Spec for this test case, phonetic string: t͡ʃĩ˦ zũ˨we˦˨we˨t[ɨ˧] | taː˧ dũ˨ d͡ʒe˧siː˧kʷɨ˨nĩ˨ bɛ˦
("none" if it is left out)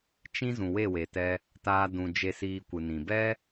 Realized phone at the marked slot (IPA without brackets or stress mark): ɛ˧